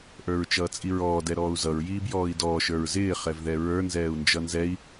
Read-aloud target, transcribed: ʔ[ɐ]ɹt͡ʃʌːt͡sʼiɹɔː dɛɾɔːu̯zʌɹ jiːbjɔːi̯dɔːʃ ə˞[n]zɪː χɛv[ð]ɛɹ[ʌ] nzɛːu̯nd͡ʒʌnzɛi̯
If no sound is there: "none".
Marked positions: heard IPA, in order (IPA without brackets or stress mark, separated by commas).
ə˞, ɹ, ð, ə˞